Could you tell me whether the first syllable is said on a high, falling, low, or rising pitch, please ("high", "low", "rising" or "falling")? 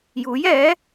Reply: rising